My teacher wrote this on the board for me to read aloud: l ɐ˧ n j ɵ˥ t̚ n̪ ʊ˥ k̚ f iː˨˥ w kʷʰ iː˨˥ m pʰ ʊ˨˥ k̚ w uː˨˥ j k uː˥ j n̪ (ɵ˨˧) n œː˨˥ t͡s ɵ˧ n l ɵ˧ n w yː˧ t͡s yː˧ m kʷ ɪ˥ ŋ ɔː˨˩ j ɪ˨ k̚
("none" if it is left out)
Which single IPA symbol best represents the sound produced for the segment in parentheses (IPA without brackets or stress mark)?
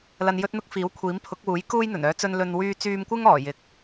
ɵ˨˩